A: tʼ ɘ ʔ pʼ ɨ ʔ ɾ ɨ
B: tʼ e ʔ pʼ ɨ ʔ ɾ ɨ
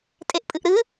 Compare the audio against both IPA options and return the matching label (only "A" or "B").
B